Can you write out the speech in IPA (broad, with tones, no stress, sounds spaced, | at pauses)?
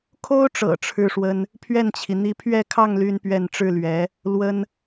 kʰ o˥ ʊ̯ ʈ͡ʂ ɤ̰˨˩ ʈ͡ʂʰ ɻ̩˥ ʂ w ə˥ n | pʰ ɥ ɛ˥˩ n t͡ɕʰ i˩ n̪ i˧˥ pʰ ɥ ɛ˥˧ kʰ ɑ˥˩ ŋ l y˥ n p ɥ ɛ˥˧ n ʈ͡ʂ ɻ̩˥˩ l ɥ ɛ˧˥ | l w ə˥ n